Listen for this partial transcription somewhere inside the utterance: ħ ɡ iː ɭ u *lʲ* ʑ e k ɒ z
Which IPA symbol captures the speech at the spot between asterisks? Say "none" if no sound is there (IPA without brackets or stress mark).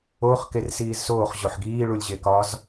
lʲ